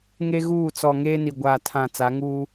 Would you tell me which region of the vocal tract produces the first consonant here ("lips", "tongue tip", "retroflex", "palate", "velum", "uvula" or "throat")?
velum